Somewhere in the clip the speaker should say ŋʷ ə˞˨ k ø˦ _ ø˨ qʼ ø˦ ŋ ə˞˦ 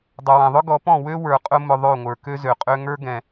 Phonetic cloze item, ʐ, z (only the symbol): z